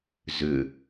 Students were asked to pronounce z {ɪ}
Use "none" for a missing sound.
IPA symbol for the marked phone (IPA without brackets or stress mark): ʏ